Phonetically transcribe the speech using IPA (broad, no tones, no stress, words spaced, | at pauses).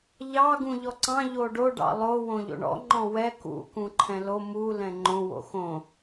ʎɑ ɡũʎɔǀɑ̃ ʎoɖo ɖɑ̰lˠo wõʎo̰ɳɔ̰ ŋ͡ǃɔ̃wɛ kṵ kũǃʰɛ̃lo mu lɛ̃ŋ͡ǃõ wo̰xõ